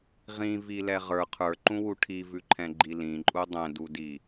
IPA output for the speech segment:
ʁĩvilɛ ʁə˞ qʰə˞ǃũwu ʈʰivʉǃʰɛ̃ɡ͡ǃi lĩǃʼu dˤɛ̃dudi

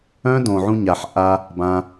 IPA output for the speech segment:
œ̃˦ dõ˨ʕũ˧ ɲa˨ħ ʔa˧ | bã˧

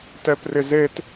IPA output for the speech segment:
tɛprɪzet

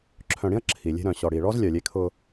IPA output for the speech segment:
ǁʰœ̃˨ɽĩ˦ɐ̯ ǁʰi˨lʲe̤˦ ɾœ̃˨ɕɔ˨ɽi˨ ɭɔ˦z lʲœ˨lʲe˦kʰʊ˦

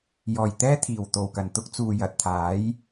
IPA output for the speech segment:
jɔː˨˩jt̪ɛː˥t̪ʰiː˨˩w t̪o˨˩wkɐ˨˩n t̪ʊ˥k̚ t͡suː˨jɐ˨t̚t̪ʰaː˨˥j

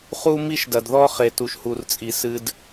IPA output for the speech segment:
χu˦mi˦ʃdɐ˨d ðɔ˦ χe˨tu˨ʃhu˨rt͡sʼi˨ sɨ˦d

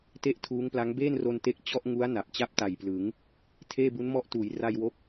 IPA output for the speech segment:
te˥˩ʔtʰuː˦˥ŋpla˦˥ŋ beː˥˩nro˧nte˦˥k̚ t͡ɕɔ˥˩ʔŋu˦˥a̯ na˨˩p̚ t͡ɕa˥˩p̚ ta˨˩jplɯ˩˦ŋ | tʰeː˥˩bu˦˥nmɔ˦˥ʔtuː˩˦j ra˧jwo˦˥k̚

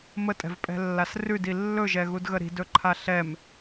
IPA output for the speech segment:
mətʼɛ̤vpʼɛ̤lːas rʉdi lːɵʒɛɣudɣə ɾi̤dɵǃʰa ɬɛm

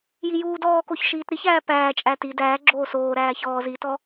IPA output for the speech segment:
jijuːdɔːkoç ʃiːtɾiçæː pæːt͡ʃʼæ ti dæː ɡ͡ǁoːsoːɾæː çɔːz itɔ

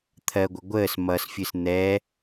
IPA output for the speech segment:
t̪ʰɜɡʷə ɡʷəːs mʌsfʲɨs n̪ɛ

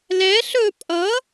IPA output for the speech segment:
lɛ ɬɵ pʼʌ

